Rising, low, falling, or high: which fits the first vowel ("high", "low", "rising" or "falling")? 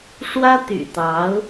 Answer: high